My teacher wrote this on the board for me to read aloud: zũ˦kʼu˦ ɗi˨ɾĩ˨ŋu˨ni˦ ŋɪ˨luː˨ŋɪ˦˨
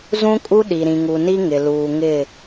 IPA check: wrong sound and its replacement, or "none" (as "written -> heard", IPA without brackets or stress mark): none